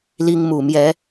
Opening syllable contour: high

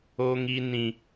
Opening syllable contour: high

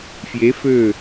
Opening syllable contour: rising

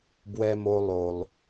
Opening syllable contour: high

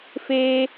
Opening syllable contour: high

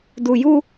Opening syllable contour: low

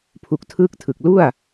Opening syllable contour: low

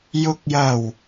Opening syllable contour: low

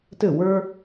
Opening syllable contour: falling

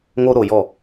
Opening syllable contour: high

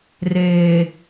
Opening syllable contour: low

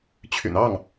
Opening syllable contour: low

